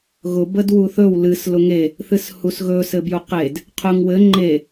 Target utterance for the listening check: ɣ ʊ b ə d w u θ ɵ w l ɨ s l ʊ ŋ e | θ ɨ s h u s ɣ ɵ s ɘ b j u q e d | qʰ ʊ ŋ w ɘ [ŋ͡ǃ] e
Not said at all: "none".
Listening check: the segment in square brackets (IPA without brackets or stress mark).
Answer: ŋ͡ǃ